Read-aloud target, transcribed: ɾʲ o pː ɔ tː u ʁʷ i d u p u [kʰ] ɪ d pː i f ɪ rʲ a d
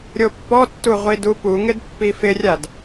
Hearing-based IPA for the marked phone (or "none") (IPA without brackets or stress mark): ŋ